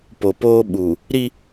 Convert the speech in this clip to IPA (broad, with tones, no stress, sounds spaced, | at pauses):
p o˨ p oː˦ ɓ u˨ | ɾ i˦